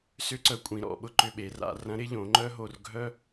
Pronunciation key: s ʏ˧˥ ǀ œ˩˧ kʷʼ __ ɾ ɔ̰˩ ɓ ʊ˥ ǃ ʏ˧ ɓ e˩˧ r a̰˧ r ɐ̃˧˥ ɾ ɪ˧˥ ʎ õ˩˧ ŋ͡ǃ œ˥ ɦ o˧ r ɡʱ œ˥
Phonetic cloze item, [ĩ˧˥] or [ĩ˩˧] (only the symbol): ĩ˩˧